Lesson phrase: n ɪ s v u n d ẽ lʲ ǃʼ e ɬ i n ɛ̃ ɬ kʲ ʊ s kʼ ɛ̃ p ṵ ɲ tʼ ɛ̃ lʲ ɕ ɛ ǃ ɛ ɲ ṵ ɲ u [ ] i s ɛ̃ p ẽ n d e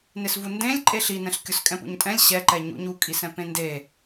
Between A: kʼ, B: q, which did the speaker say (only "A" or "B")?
A